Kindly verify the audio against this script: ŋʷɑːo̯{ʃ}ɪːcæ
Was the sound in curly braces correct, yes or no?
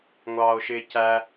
yes